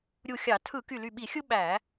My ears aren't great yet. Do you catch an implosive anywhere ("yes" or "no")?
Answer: yes